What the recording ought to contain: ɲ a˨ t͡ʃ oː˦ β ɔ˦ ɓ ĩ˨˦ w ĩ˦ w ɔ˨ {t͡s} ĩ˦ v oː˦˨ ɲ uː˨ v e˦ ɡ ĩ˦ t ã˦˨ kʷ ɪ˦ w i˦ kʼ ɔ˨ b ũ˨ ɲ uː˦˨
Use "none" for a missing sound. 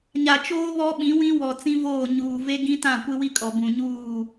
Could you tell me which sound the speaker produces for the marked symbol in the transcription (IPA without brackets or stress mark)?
t͡s